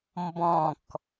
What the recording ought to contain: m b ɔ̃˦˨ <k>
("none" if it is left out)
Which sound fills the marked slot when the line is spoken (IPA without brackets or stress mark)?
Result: k